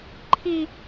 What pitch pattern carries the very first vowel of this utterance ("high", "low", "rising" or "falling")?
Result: high